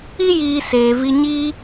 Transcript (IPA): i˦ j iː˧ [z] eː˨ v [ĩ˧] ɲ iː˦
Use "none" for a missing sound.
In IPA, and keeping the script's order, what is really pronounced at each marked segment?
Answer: s, i˧

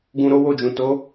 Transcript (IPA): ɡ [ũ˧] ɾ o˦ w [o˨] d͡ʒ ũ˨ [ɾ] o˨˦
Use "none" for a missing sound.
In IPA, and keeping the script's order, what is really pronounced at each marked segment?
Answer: ũ˧, o˦˨, t

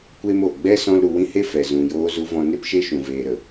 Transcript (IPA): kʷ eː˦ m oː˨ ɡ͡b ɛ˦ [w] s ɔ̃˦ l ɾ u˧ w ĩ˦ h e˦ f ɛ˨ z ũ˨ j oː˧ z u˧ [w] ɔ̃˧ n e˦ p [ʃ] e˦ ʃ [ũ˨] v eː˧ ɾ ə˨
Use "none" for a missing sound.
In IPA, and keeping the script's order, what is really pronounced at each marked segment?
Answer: none, v, ʃ, ũ˧

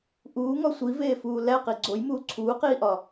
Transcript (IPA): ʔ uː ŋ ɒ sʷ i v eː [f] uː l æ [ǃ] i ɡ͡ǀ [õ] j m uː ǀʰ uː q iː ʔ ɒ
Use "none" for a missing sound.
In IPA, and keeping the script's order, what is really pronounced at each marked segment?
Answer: f, q, o

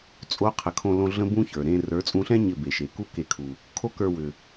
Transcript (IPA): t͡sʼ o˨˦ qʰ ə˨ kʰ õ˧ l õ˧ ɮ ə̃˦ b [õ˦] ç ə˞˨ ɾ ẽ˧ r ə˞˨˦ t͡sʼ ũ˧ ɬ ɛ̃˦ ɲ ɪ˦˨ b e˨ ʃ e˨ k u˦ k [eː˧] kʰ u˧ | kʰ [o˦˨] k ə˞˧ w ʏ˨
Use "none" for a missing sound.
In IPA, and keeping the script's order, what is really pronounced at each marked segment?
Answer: ũ˦, e˧, o˦

